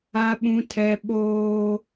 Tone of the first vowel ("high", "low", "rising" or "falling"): high